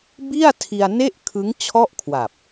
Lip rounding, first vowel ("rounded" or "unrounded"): unrounded